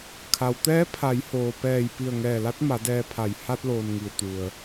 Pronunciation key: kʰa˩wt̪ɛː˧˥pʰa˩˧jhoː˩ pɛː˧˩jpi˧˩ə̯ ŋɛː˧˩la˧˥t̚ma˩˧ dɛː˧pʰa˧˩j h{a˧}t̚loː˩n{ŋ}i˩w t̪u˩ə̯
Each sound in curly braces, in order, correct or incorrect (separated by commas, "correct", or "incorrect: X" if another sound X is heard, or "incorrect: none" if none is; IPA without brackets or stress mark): correct, correct